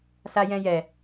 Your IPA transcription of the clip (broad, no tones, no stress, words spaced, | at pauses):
sajɛ̃jɛ